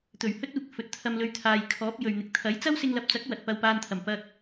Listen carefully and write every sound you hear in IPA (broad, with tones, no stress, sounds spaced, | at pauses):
t̪ ɵ˨˩ ɥ h ɵ˥ t̚ uː˧ k̚ f ɵ˨ t̚ t̪ʰ ɐ˧ m l ɵ˧ ɥ t̪ʰ aː˨ j kʰ ɔː˨˥ p̚ j ɵ˨ ɥ n̪ ɪ˨ k̚ t̪ʰ ɐ˨˥ j t͡s ɐ˥ w s ɪ˧ ŋ l ɐ˨ p̚ t͡s ɐ˨˥ k̚ w ɐ˨ t̚ p ɐ˧ w p aː˧ n t̪ʰ ɐ˨˩ m p ɐ˧ k̚